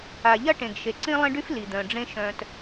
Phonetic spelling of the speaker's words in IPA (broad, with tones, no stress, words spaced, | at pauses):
a˨ʎɐ˦ ʈẽ˨ɡʃe˨ ǀĩ˦lˠẽ˦ɖy˦f li˨d̪œ̃˨ɖ͡ʐẽ˦ ʃœ̃˨t